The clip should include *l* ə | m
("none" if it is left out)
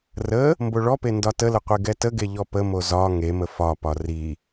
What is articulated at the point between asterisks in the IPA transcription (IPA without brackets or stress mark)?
r